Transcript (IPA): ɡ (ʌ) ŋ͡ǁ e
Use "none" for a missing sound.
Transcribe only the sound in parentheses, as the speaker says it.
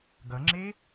ʌ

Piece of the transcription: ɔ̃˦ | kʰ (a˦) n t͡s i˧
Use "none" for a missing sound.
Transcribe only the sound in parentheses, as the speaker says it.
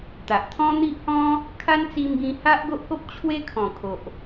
a˦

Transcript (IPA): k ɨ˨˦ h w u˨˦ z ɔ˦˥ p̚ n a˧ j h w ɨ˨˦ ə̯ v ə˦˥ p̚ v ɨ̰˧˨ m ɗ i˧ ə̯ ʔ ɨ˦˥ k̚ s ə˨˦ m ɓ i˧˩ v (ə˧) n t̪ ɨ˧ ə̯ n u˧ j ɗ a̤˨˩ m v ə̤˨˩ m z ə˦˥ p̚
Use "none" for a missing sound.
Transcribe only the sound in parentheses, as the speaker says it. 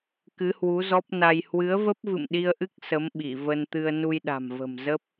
ə˧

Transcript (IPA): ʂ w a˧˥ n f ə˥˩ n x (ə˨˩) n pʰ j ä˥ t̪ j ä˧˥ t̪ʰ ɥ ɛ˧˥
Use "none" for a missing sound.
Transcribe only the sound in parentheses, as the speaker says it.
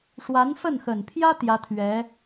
ə˨˩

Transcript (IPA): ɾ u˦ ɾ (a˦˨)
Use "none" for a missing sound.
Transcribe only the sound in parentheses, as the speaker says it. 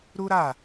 a˦˨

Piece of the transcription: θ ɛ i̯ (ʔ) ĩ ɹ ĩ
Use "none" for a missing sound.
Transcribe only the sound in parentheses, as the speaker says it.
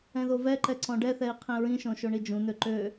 qʰ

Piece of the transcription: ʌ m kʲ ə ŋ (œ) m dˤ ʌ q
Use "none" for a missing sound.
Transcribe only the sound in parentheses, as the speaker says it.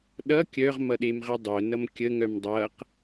œ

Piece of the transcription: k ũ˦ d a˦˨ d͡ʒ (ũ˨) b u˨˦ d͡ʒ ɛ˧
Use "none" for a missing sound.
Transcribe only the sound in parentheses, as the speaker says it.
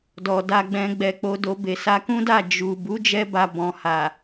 u˨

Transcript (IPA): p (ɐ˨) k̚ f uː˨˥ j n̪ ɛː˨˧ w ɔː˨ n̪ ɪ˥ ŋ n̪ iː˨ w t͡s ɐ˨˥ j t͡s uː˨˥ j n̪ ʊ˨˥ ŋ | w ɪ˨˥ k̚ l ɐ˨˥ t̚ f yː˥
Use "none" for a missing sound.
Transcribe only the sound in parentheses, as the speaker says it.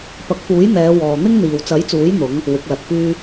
ɐ˨˥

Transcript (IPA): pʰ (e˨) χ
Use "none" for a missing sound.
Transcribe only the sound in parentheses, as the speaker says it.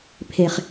e˨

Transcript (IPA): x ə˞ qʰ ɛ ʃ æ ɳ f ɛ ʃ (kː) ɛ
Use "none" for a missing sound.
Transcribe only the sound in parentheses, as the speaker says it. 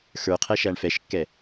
kː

